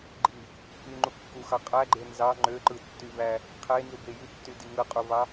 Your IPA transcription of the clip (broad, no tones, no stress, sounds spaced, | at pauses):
ɡ͡ǃ i | ʔ y ŋ͡ǃ u kː u x ɑ qʼ æ ɡ͡ǃ e n z ɑ ŋ͡ǃ ø ǃ ɯ tː y v æ | qʰ e n z u b e j y tː y d i ŋ ɯ qʼ u v ɑ